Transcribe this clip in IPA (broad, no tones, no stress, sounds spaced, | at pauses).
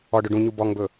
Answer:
ɔ ɖ ɵ ɖ ũ ɲ u b ɔ ŋ b ɵ